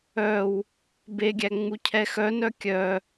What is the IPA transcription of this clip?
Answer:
œ w | b e ɡʲ æ ŋ͡m u cʰ ɛ x œ n œ kʲ œ

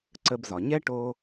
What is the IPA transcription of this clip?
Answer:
ǀ ə˧ b z ɒ˩ ɲ ɛ˥ ʈ o˧

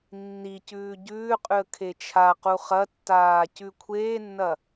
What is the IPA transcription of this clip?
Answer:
nː i c ʉː ɟ ʉː qʼ ʉ ə̯ kʰ e t͡ʃʰ a q u χ ɐ tː aː c ʉ kʷʰ eː nː ɐ

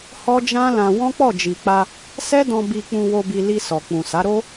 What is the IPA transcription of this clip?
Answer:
h ɔ˦ d͡ʒ ã˦ l ã˧ w ɔ̃˦ k͡p ɔ˦˨ d͡ʒ i˨ k͡p a˧ | s ɛ˦ d ɔ̃˧ b i˧ k͡p ũ˧ w o˧ b i˧ l i˧ s ɔ˨ k͡p ũ˨ s a˨˦ ɾ o˦

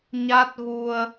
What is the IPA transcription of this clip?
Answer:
ɲ a˦˥ t̚ ɣ u˧ ə̯

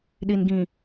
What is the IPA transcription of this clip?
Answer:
ɗ i˨ n ɡ ĩ˨

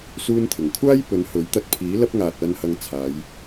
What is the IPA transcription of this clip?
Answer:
s uː˥ n t̪ʰ ɪ˨˩ ŋ kʷʰ aː˥ j p ɵ˨˧ n h ɵ˨˥ ɥ t̪ ɐ˧ t̚ pʰ iː˨˥ l ɐ˥ p̚ ŋ aː˨ t̚ ɐ˧ n h ɐ˧ ŋ t͡sʰ aː˨˧ j

